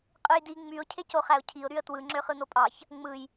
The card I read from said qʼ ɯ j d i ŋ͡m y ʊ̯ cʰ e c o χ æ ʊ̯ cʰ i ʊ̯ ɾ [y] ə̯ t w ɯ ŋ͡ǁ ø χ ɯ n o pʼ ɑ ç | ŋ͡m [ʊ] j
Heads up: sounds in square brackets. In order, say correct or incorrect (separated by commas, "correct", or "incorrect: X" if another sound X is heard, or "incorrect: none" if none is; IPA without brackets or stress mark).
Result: correct, incorrect: ɯ